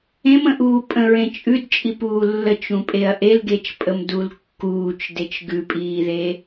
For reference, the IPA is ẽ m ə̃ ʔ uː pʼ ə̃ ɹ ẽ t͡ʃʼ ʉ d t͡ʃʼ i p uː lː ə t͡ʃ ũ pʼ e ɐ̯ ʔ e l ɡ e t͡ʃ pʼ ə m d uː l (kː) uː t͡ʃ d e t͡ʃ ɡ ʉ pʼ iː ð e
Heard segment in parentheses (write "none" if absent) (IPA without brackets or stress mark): kː